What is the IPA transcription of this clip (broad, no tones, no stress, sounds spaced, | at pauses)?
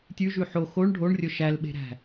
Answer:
tʲ ʉ ʒ ʉ ħ o x o ɳ ɖʱ o ɳ rʲ ɵ ʃ æ l ɓ e̤ ɾ æ̤